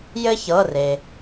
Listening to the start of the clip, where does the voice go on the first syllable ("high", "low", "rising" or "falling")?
high